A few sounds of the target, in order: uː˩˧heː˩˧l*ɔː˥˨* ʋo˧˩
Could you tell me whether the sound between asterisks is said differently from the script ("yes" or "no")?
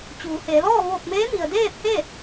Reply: no